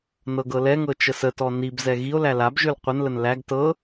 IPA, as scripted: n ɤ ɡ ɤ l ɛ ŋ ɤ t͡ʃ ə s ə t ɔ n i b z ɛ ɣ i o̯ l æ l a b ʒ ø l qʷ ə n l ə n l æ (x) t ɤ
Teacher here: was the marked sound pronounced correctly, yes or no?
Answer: no